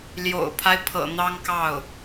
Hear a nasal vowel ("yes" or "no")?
no